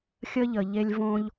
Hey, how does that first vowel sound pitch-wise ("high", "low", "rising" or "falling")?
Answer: high